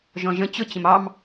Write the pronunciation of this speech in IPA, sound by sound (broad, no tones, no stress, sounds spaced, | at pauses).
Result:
ʒ ɔ̃ ʒ ə̃ t͡ɕ ʊ t͡ɕ ə̃ m ɑ m